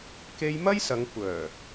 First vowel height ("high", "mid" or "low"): mid